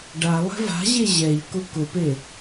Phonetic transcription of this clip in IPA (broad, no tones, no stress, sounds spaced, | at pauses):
ɖ a lˠ ɛ̤ v a̤ ʑ e ʑ ɛ ʎ k ʊ k ʊ p e